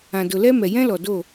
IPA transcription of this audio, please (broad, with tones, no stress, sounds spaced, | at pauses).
ã˨ d ʊ˨ l ɛ˦ m ɛ˨ j ɛ̃˦ l ɔ˨ d o˦˨